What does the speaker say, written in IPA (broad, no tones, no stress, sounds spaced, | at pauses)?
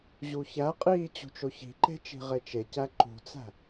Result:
ʑ u ç æ qʼ iː t͡ɕ ṳ t͡ʃ o ç i̤ ǃ e̤ t͡ʃ i̤ ʁ e t͡ʃ e c æ ǃ ṳ t͡s æ̤